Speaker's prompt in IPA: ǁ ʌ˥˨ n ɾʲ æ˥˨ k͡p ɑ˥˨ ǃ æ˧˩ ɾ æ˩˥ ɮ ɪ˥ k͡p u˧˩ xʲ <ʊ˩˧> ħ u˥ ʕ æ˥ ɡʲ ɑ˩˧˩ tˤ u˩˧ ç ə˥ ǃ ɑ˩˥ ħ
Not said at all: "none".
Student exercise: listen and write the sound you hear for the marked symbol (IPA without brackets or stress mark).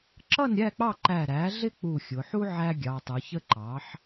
ʊ˩˧